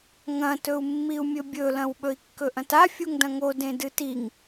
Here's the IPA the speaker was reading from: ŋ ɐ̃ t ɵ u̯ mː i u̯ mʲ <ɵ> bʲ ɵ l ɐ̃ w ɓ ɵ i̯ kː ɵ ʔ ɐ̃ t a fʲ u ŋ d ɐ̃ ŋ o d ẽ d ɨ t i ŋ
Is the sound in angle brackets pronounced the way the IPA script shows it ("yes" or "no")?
yes